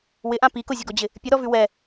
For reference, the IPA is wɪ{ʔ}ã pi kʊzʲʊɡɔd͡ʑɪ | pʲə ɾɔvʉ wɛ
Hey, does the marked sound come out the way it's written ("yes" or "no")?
yes